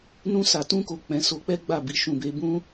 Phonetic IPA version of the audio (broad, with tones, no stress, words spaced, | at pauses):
nũ˧sa˨tũ˧ko˨ k͡pɛ̃˨˦so˧k͡pɛ˦ɡ͡ba˦˨ bi˧ʃũ˨be˨˦ bũ˦